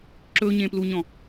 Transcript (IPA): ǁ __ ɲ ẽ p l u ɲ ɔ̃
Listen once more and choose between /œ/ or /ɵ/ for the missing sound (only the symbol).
ɵ